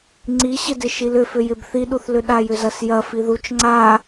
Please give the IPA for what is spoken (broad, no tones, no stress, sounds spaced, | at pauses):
ŋ͡ǀ i ɕ ɪ d ɪ ʃ i l ʏ f ʏ j ɪ b θ i ɗ u θ l ʏ ɗ a j ʏ z ɐ s j ɐ f i ð u t͡ʃ ŋ͡ǀ a